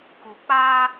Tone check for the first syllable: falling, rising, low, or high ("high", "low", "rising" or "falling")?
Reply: low